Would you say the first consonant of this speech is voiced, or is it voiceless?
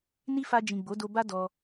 voiced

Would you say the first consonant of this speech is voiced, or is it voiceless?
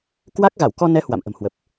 voiceless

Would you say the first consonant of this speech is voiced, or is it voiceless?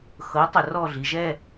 voiceless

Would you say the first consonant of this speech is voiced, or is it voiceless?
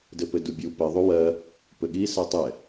voiced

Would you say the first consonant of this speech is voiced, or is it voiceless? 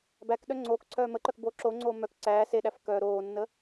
voiced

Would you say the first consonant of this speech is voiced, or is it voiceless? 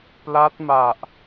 voiceless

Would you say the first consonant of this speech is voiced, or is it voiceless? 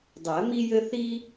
voiced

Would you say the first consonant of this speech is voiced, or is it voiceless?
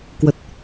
voiceless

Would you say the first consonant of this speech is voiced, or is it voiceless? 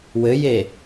voiced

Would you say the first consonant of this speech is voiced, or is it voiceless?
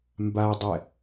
voiced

